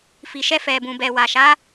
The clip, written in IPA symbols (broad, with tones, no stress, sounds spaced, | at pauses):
f i˨ ʃ ɛ˧ f ɛ˨ b ũ˨ b ɛ˨ w a˨ ʃ a˨˦